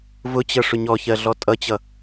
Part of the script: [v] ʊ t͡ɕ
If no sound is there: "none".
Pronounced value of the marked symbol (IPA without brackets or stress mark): v